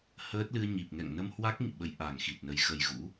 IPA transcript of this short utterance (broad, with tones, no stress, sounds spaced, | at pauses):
h əː˦˥ t̚ l ɨ˧ ə̯ ɲ i˨˩ p̚ ŋ ɛ̰˧˨ ŋ n ə˧ m h w a˦˥ k̚ ŋ ḭ˧˨ ɓ ə˨˦ j ʔ a˨˩ ŋ x i˨˩ t̚ n ə˨˩ j x ə˨˩ j ɣ ṵ˧˥